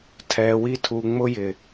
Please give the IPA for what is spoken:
tʰ ɛ˨ w i˧ tʰ u˨ ŋ͡m ʊ˦ j ɪ˨

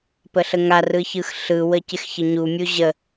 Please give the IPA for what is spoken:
p ə ɬ ə ŋ a r ɯ ç ɯ x ɬ ɯ w ə c ɪ x ç ə ɲ u mʲ u ʑ ə

